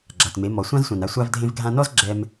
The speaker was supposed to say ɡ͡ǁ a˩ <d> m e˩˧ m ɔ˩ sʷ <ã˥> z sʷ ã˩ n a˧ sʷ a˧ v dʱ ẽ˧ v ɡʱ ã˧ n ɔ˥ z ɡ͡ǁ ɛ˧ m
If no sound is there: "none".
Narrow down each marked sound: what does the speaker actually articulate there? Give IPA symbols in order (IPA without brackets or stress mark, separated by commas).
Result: t, ã˥